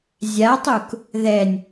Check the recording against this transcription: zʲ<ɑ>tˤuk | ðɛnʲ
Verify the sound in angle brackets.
incorrect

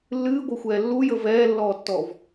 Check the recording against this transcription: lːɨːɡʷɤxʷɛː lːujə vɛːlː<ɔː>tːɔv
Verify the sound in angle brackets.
correct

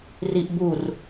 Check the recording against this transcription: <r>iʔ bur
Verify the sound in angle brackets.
correct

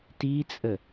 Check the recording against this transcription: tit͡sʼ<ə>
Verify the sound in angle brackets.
correct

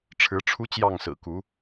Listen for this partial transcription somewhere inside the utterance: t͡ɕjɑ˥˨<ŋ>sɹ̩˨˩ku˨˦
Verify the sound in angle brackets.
correct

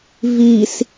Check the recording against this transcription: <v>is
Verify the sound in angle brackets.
correct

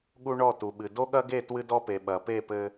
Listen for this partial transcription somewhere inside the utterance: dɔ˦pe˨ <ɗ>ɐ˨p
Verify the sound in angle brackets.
incorrect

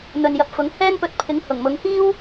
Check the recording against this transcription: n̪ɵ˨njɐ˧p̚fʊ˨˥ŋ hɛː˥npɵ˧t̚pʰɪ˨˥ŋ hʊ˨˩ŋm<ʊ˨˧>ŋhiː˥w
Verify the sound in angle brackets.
correct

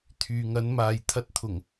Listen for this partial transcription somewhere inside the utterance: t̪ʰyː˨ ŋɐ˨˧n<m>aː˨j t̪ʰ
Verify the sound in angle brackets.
correct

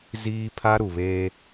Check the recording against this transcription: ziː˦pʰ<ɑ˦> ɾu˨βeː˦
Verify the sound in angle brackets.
incorrect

